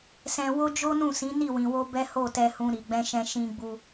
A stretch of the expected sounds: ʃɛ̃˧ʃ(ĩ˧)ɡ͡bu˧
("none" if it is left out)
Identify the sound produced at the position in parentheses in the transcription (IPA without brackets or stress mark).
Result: ĩ˧